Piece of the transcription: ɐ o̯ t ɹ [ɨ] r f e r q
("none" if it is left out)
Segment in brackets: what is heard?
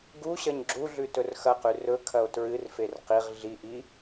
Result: ɨ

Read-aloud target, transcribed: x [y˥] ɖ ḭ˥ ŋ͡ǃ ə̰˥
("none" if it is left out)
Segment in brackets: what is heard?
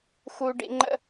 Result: u˥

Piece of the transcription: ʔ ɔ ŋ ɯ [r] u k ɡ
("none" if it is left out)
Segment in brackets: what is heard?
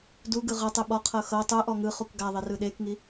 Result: χ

